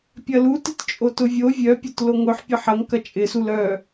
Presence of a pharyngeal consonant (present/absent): present